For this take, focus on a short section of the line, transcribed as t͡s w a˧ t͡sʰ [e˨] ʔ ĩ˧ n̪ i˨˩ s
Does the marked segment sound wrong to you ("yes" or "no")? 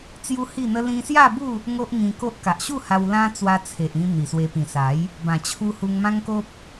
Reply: no